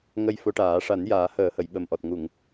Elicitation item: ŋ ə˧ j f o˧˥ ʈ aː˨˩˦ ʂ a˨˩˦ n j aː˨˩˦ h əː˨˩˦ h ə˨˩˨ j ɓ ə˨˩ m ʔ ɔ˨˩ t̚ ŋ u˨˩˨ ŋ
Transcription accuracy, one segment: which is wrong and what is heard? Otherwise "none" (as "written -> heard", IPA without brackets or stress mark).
none